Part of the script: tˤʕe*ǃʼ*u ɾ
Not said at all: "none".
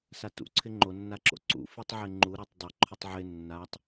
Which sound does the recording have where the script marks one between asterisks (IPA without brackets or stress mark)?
ŋ͡ǃ